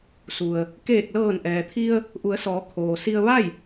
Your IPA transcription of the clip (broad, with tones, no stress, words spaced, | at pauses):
su˩ə̯ | keː˧˩k̚lɤː˧˩nʔɛː˩t̪ʰi˧ə̯ | ʔu˩˧ə̯sɔː˩˧ kʰoː˩si˧ə̯ ʋa˥˨j